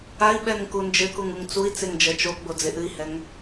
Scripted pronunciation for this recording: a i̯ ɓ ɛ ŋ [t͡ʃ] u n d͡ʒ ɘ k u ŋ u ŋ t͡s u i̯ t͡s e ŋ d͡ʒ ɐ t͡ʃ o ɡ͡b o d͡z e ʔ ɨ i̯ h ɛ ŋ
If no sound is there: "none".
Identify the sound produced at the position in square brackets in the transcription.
k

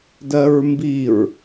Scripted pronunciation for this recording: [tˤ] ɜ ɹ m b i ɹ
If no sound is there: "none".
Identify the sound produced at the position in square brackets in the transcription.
d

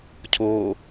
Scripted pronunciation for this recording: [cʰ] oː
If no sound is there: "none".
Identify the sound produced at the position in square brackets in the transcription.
cʰ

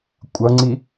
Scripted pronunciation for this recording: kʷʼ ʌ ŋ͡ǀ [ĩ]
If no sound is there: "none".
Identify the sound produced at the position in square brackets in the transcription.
i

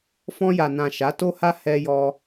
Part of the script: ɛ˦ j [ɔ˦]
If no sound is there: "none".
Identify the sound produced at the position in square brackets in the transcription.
ɔ˦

